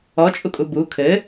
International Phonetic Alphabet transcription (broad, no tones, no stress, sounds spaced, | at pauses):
ɔ t͡ʃʼ u kʼ u b u kʰ ɘ